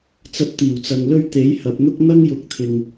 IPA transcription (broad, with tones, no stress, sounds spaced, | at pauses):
t͡s ɐ˧ p̚ t̪ iː˨˩ w t͡s ɐ˨ ŋ l ɵ˥ ɥ t̪ e˨˥ j h ɐ˨ p̚ n̪ ʊ˥ k̚ n̪ ɐ˥ ŋ j ʊ˨˥ k̚ t̪ʰ ɪ˨ ŋ